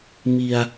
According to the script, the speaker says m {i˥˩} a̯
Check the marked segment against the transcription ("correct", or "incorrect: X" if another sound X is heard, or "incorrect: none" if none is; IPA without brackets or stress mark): incorrect: i˧